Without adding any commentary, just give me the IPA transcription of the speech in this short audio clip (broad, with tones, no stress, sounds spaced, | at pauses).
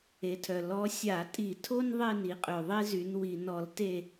e˩˧ tʰ œ˩ l ɔ˧˥ sʲ a˧˩˧ tʼ i˧˩˧ tʰ o˥ n ðˤ e˦˨ n i˩˧ qʼ ø˩ ðˤ e˥ z y˩˧ n w i˩ n ɔ˧˩˧ l t e˦˨